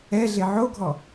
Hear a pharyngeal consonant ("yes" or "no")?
yes